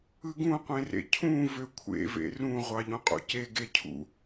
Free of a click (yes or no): yes